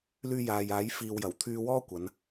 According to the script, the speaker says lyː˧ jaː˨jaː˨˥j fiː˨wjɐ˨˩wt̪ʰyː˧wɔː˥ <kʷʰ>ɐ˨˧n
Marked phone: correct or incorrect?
incorrect: kʷ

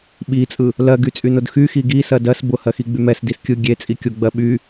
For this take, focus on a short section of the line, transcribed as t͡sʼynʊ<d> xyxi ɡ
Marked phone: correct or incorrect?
correct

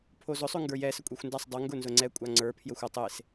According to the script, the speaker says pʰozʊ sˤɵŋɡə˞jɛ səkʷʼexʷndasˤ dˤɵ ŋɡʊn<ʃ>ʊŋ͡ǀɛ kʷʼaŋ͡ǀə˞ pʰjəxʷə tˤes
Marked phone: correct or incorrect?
incorrect: z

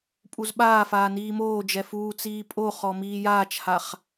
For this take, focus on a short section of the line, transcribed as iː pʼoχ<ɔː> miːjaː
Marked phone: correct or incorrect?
incorrect: ɔ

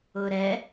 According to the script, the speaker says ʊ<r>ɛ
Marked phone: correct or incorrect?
incorrect: ɾ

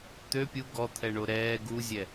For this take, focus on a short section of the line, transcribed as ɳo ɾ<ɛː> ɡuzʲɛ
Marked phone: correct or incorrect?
correct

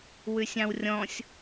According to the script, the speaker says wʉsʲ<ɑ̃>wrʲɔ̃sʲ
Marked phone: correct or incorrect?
correct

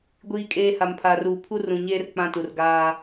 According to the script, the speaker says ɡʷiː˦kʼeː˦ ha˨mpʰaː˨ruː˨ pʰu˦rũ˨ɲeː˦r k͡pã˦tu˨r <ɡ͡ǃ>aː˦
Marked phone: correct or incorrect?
incorrect: ɡ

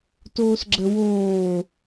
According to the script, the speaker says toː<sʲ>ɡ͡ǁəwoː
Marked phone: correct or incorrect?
incorrect: s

